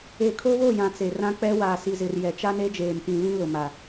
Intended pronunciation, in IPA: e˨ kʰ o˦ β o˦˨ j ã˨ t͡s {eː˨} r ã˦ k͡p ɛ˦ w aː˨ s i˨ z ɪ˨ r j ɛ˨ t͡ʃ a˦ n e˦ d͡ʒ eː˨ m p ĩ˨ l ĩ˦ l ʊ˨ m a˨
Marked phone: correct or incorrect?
incorrect: e˨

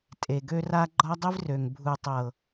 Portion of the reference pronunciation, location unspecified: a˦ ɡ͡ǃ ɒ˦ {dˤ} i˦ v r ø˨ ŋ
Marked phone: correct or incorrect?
correct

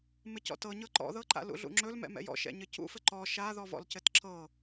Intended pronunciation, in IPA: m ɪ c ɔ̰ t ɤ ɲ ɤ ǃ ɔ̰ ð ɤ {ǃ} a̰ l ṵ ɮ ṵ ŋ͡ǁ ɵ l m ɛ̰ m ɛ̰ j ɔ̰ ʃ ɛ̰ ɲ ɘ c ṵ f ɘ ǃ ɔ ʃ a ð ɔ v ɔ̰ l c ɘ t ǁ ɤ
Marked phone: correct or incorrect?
correct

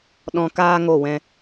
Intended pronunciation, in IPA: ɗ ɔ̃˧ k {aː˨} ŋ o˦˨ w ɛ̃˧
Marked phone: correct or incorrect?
incorrect: aː˦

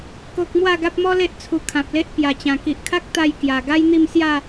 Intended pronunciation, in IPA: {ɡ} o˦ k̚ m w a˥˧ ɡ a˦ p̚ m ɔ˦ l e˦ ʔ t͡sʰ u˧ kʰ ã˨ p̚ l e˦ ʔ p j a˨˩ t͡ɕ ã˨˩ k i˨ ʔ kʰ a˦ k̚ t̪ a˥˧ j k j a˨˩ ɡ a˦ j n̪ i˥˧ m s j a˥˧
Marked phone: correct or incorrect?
incorrect: k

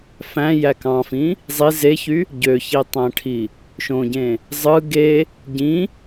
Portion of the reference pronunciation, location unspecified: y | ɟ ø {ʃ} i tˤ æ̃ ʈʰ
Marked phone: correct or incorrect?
incorrect: ç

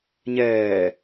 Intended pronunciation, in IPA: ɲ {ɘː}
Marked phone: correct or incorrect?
incorrect: ɛː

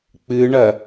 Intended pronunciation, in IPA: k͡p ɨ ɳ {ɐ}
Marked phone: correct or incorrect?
correct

